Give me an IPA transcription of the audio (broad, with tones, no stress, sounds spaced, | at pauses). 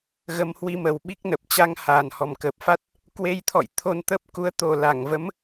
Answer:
ɣ ə˧ m h w i˧ m ə˨˩ w ɓ i˦˥ k̚ n ə˨˩ p̚ t͡ɕ a˧ ŋ h aː˨˩ n h ɔ˨˩ m k əː˨˩ p̚ f a˦˥ t̚ | k w e˧ j t̪ʰ ɔ̰˧˨ j t̪ʰ o˧ n t̪ ə˦˥ p̚ k u˨˦ ə̯ t̪ o˨˩ l a˧˩ ŋ v ə˨˦ m